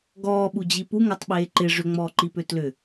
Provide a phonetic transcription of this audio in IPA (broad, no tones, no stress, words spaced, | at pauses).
ɡɔːɓud͡ʑi puŋatˤɓeː ǃɪ ʐʏŋ͡mɔːǃipø tlʏ